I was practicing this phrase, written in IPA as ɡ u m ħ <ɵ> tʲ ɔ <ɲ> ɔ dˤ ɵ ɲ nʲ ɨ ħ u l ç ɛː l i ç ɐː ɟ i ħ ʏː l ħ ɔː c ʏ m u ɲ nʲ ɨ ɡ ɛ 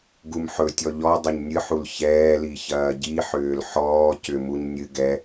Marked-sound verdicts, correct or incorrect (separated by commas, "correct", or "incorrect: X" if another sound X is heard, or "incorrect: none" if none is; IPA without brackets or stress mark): correct, incorrect: ʎ